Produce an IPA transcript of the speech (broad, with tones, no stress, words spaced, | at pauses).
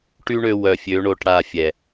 ʈy˦ɳø˧ wœ˨fʲø˨˦ ɳo˧ʈ ɽa˦˨fʲɛ˨